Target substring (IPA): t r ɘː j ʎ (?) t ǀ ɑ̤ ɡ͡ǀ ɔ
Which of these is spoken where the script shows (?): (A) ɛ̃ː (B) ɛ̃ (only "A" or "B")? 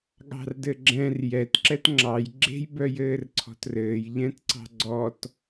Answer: B